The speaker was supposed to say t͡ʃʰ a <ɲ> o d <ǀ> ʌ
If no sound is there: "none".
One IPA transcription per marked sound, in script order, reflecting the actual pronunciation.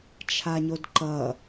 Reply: ɲ, ǃ

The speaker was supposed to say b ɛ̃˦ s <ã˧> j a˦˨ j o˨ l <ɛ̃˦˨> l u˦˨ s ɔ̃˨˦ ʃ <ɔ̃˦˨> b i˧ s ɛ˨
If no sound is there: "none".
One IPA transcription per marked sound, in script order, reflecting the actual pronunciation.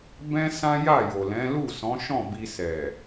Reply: ã˦, ɛ̃˨˦, ɔ̃˦˨

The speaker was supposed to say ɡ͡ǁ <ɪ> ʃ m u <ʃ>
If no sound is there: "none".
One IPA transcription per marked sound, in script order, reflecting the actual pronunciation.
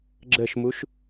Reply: ə, ʃ

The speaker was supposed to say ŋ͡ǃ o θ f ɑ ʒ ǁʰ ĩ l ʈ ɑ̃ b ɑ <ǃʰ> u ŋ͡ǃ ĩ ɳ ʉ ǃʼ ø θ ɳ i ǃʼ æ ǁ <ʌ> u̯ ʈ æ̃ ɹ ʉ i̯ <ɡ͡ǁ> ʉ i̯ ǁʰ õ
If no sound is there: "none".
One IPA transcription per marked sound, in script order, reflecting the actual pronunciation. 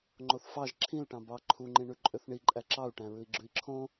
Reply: ǃʰ, ɑ, ɡ͡ǁ

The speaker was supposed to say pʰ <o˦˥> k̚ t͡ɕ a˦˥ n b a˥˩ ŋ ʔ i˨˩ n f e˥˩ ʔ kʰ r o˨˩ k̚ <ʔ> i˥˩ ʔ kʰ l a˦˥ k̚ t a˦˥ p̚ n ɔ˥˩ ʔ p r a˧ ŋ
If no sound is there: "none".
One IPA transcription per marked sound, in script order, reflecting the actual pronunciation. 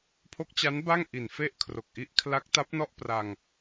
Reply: o˦˥, ʔ

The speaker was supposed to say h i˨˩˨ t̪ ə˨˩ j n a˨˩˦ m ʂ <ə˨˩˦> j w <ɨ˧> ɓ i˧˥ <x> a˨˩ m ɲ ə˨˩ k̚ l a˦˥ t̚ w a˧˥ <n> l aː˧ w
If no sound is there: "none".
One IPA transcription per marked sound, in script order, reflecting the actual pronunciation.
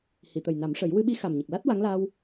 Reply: ə˨˩˦, ɨ˧, x, ŋ

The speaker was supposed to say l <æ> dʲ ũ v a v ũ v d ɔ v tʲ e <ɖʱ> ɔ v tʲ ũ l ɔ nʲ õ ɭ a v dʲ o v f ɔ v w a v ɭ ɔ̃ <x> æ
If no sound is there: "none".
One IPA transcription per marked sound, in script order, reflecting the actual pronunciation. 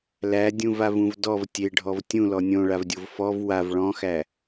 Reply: æ, ɖʱ, x

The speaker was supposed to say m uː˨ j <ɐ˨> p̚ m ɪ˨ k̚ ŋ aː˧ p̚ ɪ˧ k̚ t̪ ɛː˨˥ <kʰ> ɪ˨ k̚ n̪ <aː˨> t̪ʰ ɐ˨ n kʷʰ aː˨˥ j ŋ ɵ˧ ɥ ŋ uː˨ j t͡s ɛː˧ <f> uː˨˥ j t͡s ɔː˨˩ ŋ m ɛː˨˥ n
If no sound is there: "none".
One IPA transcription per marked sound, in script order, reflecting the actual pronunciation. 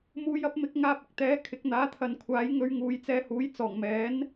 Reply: ɐ˧, kʰ, aː˨˥, h

